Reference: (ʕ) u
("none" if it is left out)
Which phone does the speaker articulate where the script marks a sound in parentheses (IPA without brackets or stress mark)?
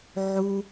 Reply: ʕ